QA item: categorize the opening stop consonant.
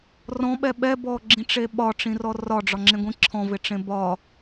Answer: implosive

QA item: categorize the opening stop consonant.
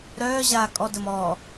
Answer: ejective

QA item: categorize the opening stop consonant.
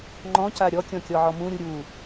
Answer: click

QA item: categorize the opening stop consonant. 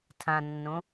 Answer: aspirated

